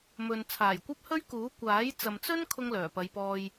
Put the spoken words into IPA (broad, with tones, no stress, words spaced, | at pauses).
mɵ˨n t͡sʰaː˨˩jkʷɐ˥p̚hɵ˥ɥkuː˨˥ kʷaː˨˥j t͡sɐ˨mt͡sɵ˥n kʰʊ˥ŋlœː˨˩pɐ˨˧jpɔː˧j